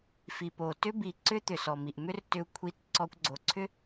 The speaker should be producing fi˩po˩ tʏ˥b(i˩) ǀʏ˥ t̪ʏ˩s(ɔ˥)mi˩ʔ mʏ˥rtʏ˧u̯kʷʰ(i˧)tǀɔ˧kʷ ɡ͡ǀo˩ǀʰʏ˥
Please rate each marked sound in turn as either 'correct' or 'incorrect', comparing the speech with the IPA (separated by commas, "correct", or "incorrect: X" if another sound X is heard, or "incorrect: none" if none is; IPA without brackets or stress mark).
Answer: correct, incorrect: ɔ˩, correct